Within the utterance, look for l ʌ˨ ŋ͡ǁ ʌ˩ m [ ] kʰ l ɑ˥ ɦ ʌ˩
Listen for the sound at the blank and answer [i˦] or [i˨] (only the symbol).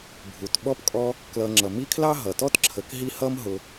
i˦